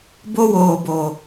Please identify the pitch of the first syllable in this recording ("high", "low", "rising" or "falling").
high